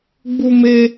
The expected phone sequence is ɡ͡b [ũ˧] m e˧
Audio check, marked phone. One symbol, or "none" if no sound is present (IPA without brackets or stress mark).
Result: u˧